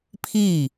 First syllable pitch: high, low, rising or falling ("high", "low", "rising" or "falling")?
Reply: falling